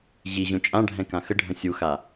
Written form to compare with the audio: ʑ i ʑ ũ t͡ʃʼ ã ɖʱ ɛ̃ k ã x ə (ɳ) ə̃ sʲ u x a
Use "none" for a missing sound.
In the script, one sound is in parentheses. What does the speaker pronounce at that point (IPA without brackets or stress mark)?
ɖʱ